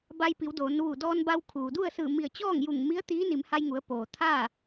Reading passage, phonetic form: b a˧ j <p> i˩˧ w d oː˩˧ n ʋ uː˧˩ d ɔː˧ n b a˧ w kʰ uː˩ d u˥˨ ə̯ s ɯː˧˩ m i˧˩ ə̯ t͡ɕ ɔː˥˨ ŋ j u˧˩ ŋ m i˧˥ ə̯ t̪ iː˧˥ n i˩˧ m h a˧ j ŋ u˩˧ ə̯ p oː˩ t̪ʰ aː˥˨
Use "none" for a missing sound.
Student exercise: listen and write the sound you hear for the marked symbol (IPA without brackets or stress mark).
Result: p